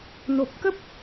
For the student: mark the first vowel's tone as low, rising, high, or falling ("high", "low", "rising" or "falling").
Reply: low